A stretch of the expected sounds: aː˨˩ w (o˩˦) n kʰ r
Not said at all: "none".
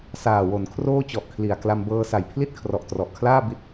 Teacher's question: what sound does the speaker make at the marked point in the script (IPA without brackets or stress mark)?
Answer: o˩˦